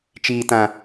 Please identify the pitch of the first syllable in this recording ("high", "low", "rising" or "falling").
low